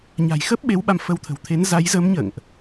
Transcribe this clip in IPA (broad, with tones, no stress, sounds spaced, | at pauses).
ɲ a̤˨˩ j x ə˦˥ p̚ ɓ e˨˦ w ɓ a˧ m f ə˧ w t̪ʰ ə̤˨˩ w t̪ʰ e˨˦ n z a˨˦ j z ə˨˦ m ɲ ə̰ː˧˨ ŋ ʔ